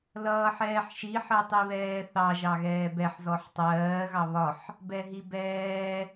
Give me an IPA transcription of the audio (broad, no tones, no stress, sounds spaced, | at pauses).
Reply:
l ʌː ħ ɛː ħ ʃ i ħ ɜ tˤ i β ɛː θ ɑ ʒ ɑ ɣ ɛː b ɛ ħ z ɔ ħ tˤ ɜː ɣ ɑ β ɒ ħ | b ɛ ɦ i b ɛː